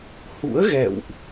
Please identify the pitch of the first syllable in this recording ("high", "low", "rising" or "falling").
rising